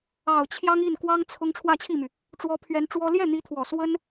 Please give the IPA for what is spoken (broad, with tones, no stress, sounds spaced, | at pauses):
ɑ˨˩ ʊ̯ t͡ɕʰ j ɑ˥ ŋ i˥˩ n k w ɑ˥ ŋ t͡sʰ ʊ˥ ŋ ʈ͡ʂʰ w ä˥˧ t͡ɕʰ i˥˩ m y˩ | ʈ͡ʂ w ɔ˧˥ pʰ ɥ ɛ˧˥ n ʈ͡ʂ w ɔ˥ l j ɛ˥˩ n̪ i˧˥ t̪ʰ w ɔ˨˩ s w ə˥ n